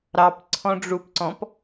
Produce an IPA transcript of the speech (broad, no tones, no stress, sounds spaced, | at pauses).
ɾ ɑ p ǀʰ ɔ̃ ɖ͡ʐ u p ǀ ɔ̃ p